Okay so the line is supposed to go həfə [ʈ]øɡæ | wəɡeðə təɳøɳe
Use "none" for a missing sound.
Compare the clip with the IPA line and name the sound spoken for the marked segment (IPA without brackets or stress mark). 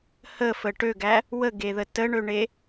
ʈ